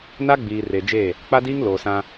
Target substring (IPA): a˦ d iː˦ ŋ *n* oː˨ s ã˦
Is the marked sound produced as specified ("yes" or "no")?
no